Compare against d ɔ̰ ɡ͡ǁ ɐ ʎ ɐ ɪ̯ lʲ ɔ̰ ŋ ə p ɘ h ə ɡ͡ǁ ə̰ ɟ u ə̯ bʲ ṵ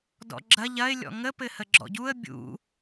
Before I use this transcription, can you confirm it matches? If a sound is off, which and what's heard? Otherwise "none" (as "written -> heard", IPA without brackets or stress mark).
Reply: ə̰ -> ɔ̰